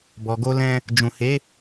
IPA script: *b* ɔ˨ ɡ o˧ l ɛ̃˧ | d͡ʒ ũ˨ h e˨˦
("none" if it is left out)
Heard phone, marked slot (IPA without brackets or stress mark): b